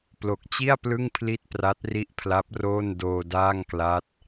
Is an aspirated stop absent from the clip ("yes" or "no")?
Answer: no